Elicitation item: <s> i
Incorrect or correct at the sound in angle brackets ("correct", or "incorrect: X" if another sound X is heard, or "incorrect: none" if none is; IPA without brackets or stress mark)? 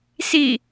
correct